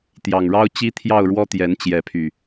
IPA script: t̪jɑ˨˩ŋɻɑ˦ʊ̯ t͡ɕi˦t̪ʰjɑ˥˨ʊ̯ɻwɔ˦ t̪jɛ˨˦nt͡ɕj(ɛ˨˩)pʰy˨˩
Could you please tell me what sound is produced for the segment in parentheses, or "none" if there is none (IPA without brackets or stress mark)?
ɛ˨˦